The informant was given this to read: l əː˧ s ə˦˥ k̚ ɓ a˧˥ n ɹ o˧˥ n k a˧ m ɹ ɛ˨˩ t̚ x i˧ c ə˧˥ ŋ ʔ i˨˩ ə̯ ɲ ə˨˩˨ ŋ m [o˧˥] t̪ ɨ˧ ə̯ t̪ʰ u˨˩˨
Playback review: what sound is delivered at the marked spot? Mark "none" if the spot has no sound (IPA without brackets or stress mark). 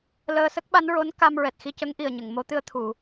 o˧˥